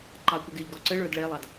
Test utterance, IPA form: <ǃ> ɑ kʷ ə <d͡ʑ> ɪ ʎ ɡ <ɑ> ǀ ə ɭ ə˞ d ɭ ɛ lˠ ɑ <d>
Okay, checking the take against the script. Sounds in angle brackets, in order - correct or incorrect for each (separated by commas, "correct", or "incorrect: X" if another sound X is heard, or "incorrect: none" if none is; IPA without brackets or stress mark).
correct, incorrect: ɡ, incorrect: ɔ, correct